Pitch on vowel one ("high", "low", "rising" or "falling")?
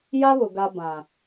high